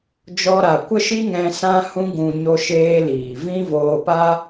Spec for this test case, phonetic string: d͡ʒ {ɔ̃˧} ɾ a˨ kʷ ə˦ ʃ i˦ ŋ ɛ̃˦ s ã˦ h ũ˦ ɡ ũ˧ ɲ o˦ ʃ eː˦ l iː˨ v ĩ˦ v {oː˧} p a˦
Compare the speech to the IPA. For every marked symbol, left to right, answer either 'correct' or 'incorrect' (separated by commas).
incorrect, correct